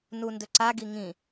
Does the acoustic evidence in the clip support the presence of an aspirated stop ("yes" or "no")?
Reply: no